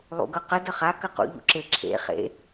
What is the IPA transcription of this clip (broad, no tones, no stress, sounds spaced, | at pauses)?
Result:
lˠ ṵ ɡ ɤ q ə d ə χ a k ə q ṵ ʎ ṵ ǁ e ǁʰ ḛ χ ḛ